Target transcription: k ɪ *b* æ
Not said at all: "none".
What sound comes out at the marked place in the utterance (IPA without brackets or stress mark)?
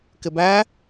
b